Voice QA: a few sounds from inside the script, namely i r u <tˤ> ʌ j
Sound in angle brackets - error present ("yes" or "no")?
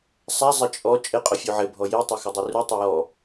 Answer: no